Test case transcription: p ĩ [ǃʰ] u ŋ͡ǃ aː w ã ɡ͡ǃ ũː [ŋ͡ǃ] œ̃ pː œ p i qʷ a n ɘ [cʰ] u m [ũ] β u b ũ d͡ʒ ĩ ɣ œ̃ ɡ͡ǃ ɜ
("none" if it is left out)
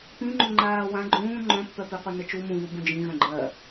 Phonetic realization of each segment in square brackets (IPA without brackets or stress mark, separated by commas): ŋ͡ǃ, ŋ͡ǃ, t͡ʃ, ũ